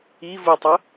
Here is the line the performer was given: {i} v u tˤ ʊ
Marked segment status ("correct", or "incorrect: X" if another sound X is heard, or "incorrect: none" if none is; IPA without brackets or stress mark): correct